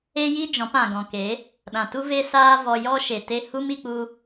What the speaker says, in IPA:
e˦ji˦ d͡ʒɔ̃˨˦pã˨ɡɔ̃˨ ke˨˦ | ɗã˨tu˦ve˦ saː˦vɔ˧ jɔ˦ʃe˨ te˧hu˦mi˧k͡pu˧

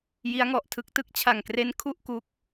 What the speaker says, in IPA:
ji˦˥a̯ŋɔ˨˩ʔ tʰɯ˦˥k̚tɯ˦˥k̚ t͡ɕʰa˨˩ŋkre˦˥n kʰu˥˩ʔku˦˥k̚

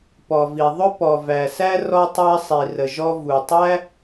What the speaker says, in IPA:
pɔ˩vi˩ ðˤʊ˥pɔ˩væ˩sæ˥ rɔ˥tˤæ˥sˤi˩ rə˩ ʒɔ˥ vu˩tˤæ˥

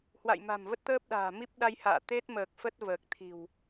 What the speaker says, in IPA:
hwa̰˧˨j ma̤˨˩mvə˦˥t̚ t̪əː˦˥p̚ɗa̤ː˨˩mi˦˥p̚ ɗa˧jha̰ː˧˨ t̪e˦˥t̚məː˨˩k̚ fə˦˥t̚vəː˨˩k̚ t̪ʰi̤˨˩w

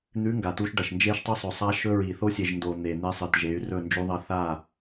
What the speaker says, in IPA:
n̪ʉ˨˦ ŋɡa˨tu˦ʃ ɖɐ˨ʃnd͡ʒe˦ʃtˤɵ˦ sˤɵ˨sˤa˦ʃɵ˦ ɹi˨θo˦sʲe˨ʒndo˨ n̪e˨n̪e˦sˤɨ˨t ʒe˨˦y̯rɵ˦˨ nd͡ʒu˦ðˤɐ˦ θa˦˨

